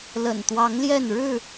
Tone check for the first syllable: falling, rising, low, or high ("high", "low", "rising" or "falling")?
low